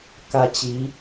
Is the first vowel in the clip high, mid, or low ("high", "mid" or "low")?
low